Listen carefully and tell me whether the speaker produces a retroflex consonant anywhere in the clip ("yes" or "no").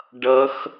yes